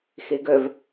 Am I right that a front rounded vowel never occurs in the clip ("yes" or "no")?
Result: no